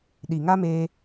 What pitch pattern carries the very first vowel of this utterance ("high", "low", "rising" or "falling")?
low